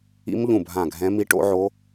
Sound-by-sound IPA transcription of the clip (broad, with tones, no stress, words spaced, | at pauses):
ḭ˦˥mʎũ˦˨bʱã˦˨ɡʱɛ̃˦˥ mi˦˥ʈo̰˦˥ʕo˦˥